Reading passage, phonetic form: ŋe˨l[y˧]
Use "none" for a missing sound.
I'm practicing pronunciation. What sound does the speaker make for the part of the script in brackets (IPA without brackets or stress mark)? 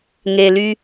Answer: y˧